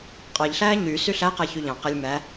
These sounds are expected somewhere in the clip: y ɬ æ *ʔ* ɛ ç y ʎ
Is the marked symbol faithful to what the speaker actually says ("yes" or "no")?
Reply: no